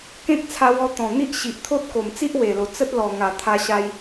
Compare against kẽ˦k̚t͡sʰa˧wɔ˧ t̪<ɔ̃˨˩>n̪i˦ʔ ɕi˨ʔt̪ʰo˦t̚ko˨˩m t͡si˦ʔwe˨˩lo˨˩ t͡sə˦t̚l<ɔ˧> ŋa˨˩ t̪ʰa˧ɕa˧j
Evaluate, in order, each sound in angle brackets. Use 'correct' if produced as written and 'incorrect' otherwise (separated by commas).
correct, incorrect